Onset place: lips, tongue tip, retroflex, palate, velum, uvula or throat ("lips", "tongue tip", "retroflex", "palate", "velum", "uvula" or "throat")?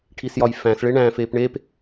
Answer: retroflex